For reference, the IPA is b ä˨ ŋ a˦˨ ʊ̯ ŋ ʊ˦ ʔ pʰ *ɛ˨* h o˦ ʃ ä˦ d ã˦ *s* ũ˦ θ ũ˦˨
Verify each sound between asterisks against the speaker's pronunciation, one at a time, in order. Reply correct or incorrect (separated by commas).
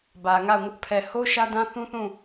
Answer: correct, incorrect